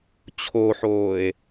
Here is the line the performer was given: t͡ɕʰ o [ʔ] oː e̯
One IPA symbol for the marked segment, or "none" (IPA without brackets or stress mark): ħ